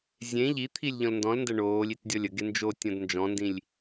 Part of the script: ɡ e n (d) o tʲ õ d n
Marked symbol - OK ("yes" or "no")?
no